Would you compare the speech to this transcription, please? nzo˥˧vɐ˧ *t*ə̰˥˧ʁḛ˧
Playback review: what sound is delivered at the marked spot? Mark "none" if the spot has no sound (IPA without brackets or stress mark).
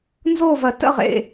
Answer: t